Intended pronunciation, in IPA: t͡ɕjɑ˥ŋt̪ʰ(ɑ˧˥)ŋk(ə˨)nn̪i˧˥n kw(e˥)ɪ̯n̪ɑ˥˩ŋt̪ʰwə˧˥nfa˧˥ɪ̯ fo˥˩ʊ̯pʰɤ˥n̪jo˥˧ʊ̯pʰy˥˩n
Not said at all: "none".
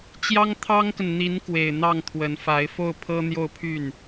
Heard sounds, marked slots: ɑ˥, ə˨, e˨˩

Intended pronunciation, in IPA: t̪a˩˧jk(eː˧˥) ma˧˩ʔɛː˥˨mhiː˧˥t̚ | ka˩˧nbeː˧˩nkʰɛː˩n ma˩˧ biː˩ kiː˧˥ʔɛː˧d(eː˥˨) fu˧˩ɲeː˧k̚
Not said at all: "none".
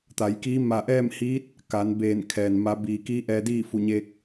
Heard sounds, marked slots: iː˧˥, iː˥˨

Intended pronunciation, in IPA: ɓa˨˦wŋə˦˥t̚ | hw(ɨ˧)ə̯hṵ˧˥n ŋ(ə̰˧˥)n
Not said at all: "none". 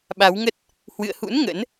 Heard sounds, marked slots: ɨ̰˧˨, ə̰˧˥

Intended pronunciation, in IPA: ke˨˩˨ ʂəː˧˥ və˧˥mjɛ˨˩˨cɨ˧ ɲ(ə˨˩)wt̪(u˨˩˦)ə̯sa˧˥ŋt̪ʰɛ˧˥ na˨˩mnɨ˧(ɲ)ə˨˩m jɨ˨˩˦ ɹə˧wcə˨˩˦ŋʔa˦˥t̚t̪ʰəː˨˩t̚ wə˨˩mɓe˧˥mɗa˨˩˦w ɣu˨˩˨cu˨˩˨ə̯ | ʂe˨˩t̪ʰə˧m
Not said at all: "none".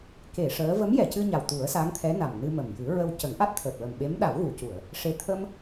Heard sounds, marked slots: a˨˩, u˨˩˦, m

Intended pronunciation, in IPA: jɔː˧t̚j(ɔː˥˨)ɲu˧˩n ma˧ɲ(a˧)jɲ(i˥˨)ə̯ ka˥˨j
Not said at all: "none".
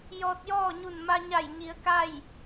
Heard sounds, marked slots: ɔː˥˨, a˧˩, i˩˧

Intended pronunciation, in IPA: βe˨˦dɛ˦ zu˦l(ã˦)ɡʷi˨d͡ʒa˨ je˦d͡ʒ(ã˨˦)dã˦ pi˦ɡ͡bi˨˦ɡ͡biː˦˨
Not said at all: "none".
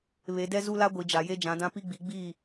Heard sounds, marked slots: a˦, ã˨˦

